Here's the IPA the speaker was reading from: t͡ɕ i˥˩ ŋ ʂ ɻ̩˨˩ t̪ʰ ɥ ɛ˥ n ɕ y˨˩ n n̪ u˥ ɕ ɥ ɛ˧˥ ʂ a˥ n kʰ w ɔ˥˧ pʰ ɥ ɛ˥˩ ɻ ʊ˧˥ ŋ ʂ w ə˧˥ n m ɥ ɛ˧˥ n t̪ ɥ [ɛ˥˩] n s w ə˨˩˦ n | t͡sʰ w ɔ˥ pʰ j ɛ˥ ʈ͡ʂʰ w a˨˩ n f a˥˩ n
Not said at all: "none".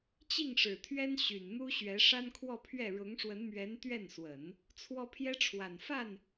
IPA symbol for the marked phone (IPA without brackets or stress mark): ɛ˥˩